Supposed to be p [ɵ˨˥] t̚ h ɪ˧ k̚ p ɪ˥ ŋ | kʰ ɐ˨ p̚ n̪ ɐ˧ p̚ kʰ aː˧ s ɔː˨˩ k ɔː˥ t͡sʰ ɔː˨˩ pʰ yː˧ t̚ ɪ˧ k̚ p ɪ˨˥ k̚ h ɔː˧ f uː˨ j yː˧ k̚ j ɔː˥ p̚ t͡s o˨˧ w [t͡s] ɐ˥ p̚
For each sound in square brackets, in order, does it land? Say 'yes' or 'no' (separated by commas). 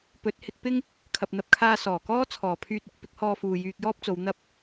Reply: yes, no